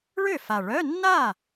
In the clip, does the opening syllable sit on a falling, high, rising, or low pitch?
falling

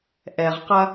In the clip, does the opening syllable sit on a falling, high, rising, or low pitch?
low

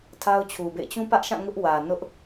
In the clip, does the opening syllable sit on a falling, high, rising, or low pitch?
high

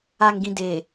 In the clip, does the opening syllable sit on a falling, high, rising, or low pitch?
low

